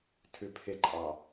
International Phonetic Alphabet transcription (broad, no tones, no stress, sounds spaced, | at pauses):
tʰ ʉ pʰ ɪ ǃʼ ɑ